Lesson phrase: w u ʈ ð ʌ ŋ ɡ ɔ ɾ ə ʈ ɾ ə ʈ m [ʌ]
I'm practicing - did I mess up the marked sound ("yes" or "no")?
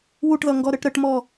yes